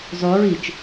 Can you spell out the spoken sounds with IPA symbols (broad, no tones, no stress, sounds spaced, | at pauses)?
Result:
zˤ ʉ ɹ i t͡ʃ